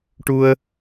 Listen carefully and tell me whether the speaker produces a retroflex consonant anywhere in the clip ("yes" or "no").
yes